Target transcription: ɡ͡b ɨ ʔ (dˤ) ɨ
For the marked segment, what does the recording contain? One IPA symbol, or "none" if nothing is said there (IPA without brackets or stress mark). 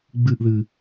ð